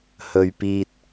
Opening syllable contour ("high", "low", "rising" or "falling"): low